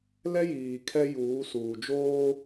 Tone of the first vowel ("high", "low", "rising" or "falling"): high